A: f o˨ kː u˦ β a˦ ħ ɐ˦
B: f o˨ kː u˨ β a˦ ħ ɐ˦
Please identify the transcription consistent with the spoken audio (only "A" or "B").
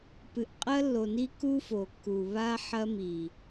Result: B